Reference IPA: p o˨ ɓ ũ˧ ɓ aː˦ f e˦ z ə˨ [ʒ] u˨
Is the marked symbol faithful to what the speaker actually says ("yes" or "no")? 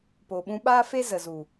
no